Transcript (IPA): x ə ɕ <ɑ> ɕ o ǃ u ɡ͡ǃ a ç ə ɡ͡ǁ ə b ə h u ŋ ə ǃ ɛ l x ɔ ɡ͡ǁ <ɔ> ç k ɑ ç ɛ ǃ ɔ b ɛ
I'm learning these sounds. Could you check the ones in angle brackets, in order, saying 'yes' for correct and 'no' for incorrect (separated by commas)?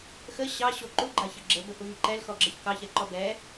yes, no